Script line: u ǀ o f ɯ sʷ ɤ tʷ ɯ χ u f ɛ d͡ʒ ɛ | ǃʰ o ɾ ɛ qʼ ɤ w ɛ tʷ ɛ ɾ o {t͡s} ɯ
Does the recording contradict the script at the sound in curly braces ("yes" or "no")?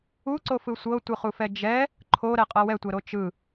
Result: yes